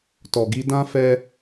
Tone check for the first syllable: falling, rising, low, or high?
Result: low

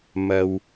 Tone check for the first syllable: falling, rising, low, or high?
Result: low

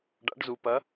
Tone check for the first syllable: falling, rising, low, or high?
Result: rising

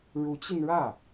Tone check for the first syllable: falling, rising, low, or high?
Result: rising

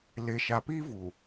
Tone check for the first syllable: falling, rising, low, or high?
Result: low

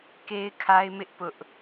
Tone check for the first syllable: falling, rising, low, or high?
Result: high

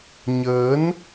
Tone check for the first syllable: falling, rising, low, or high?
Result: rising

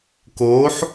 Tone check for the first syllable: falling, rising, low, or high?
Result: rising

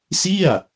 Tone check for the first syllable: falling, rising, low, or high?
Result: falling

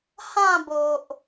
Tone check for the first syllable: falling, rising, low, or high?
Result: falling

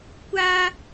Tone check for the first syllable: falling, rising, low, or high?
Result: high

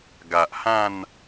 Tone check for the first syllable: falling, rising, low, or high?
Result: low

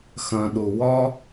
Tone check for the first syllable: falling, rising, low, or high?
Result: low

